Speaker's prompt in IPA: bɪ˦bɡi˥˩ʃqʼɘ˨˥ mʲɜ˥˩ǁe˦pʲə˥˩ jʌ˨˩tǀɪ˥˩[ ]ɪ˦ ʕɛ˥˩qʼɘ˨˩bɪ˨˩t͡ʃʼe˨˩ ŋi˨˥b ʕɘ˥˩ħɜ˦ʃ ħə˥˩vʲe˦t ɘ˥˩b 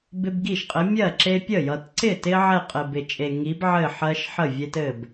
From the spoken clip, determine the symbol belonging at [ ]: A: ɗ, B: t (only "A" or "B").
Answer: B